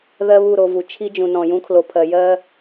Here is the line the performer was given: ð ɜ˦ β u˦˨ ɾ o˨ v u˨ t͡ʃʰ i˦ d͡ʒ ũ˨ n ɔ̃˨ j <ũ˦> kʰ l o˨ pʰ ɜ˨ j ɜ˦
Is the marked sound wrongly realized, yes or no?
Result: no